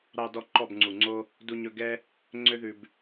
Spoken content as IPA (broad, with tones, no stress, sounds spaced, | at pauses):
ɾ ɑ˧ d ɔ˧ ǃ ɔ˦˨ b ŋ͡ǀ u˨ ŋ͡ǀ o˦ | d u˧ ɲ ɵ˧ ɡ ɛ˦ | ŋ͡ǀ ø˦ ð ʉ˧ b